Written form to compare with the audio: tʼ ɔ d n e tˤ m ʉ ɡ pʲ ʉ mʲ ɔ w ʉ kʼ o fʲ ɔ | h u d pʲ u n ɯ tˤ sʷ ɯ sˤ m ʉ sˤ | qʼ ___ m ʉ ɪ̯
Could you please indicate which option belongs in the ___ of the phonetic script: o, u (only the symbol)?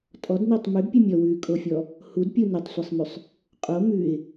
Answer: o